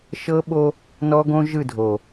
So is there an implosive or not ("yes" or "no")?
yes